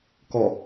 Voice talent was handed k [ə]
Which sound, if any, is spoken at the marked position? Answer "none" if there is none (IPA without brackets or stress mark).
ɔ